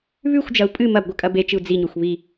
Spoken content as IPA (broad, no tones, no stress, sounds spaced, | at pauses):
β ʉ xʷ d͡ʒ ɐ u̯ pʼ ɨ m ɐ b ɡʷ ɘ kʼ ɐ b e t͡ʃ ɨ u̯ d͡z i ɲ o xʷ β i